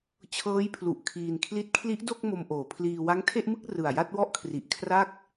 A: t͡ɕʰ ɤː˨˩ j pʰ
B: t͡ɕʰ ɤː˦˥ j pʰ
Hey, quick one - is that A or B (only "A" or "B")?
B